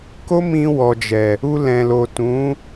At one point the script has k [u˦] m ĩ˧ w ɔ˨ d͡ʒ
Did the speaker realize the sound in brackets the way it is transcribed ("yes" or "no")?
no